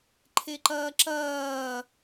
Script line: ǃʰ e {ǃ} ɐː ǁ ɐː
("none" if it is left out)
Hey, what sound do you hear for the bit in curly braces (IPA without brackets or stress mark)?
ǃ